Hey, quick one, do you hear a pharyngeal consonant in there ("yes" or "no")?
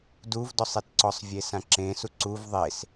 no